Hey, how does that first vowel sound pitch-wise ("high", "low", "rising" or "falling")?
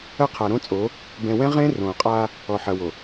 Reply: falling